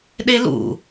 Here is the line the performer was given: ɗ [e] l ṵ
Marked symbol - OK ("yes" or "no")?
yes